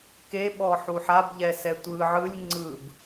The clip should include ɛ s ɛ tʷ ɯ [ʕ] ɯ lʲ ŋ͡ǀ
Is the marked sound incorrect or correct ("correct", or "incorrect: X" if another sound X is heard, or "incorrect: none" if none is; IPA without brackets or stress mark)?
correct